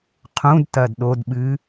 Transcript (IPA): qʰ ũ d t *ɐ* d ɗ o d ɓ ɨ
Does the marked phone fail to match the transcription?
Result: no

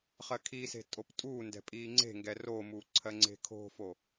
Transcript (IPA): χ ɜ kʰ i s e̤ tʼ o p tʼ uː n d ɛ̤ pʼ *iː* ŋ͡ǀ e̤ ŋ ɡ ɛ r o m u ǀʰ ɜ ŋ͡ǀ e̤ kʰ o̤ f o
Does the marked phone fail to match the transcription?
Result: no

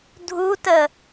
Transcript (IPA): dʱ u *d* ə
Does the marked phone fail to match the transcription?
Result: yes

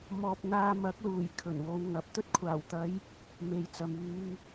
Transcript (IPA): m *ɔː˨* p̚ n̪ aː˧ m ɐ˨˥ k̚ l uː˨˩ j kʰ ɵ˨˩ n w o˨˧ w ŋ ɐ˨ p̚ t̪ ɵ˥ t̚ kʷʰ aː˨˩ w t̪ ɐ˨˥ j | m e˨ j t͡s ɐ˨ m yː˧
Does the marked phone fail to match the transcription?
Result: no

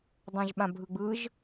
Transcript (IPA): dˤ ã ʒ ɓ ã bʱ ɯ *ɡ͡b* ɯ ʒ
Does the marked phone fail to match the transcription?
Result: no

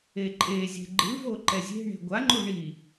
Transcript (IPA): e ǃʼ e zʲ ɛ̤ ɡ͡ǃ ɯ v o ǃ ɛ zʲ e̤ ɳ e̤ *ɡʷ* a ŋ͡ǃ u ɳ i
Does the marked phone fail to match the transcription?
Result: no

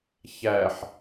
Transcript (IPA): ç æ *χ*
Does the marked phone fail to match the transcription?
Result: yes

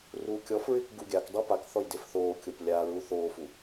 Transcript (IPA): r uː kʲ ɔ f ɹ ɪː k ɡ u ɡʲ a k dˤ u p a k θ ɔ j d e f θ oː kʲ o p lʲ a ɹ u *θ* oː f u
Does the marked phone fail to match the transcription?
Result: no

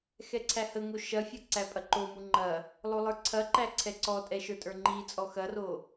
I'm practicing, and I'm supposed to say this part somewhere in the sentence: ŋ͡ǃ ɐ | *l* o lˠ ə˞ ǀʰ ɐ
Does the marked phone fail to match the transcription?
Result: yes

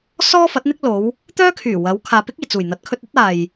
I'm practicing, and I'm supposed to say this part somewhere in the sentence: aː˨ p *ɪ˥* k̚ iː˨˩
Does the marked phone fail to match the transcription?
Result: no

